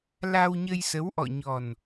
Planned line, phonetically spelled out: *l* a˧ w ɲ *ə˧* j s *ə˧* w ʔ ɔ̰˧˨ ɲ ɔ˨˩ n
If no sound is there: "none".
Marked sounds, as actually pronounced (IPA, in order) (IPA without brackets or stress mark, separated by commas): l, ə˧, ə˨˦